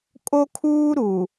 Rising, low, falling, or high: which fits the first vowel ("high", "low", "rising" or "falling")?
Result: high